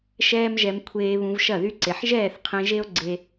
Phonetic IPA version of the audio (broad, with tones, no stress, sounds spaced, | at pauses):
ʃ ɛː˦ m ʒ ɛ˧ m kʷʰ eː˧ β ũ˧ v ʃ ɐ˦˨ ð y˦ ǀ e˨ ħ ʒ ɛː˦˨ θ qʰ ẽ˧ ʒ e˦ o̯ ɡ͡ǀ e˧